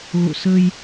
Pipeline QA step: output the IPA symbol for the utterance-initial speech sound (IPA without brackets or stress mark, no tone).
ɣ